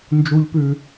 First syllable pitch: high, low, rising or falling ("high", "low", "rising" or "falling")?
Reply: low